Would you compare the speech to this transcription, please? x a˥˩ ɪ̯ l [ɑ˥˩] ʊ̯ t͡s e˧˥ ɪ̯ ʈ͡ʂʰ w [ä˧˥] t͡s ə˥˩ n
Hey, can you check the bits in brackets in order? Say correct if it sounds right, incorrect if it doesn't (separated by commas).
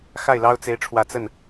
incorrect, incorrect